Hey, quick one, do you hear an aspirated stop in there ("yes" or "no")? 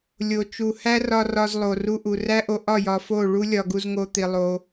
no